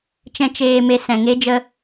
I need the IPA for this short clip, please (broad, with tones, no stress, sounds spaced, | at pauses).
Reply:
t͡ʃ ɛ̃˦ t͡ʃ eː˧ m e˧ s ɛ̃˨ ŋ e˦ d͡ʒ ə˧